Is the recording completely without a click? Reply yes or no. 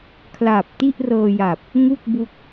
yes